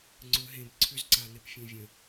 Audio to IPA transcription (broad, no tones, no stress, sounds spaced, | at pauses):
ŋ͡ǀ ɵ ɦ ẽ b ǀʰ ʏ z ǀ a n̪ e p fʲ ẽ vʲ ə̃